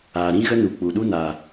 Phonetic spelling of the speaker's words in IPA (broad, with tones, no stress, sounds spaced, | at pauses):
aː˨ ɾ ĩ˦ ɣ ə˦ n u˨ k͡p u˨ ɗ u˦ n a˨